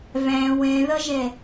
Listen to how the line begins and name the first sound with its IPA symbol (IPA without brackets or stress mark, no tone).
v